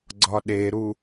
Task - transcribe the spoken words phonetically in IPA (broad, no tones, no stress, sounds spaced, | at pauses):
ɡ͡ǀ ɒ ɗ e ɾ u